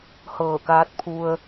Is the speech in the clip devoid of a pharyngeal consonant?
yes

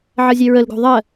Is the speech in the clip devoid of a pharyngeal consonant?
no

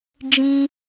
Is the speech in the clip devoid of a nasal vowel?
no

